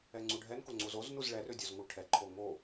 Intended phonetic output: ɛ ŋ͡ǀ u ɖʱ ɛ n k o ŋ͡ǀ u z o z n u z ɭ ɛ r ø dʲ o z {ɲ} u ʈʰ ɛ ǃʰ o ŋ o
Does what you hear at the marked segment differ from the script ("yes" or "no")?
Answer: yes